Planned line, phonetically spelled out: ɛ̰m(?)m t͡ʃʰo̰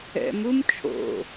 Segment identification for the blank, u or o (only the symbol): u